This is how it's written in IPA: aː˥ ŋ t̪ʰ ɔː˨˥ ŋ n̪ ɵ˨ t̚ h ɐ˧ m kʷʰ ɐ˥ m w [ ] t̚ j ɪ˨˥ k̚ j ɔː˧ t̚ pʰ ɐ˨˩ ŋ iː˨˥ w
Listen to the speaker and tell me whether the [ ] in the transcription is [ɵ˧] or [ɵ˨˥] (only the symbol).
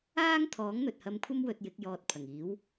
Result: ɵ˧